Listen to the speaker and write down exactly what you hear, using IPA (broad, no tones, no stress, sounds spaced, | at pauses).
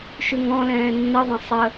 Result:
ʃ ʉ ŋ ɔ̃ l ɛ̃ː nː ə ðˤ ə̃ sˤ ə